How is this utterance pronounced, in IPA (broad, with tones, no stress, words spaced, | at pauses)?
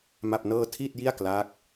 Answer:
ma˥˩p̚nɤː˥˩ tʰiː˥˩t̚ji˥˩a̯klaː˦˥k̚